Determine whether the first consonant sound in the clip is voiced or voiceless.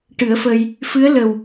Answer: voiceless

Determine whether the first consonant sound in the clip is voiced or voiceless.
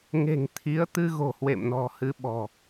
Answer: voiced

